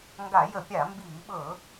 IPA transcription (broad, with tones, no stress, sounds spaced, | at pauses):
ŋ ɡ a˧˩˧ j ə˧˩˧ pʲ a˧˩˧ m b iː˧˩˧ ɓ ɤ˧˩˧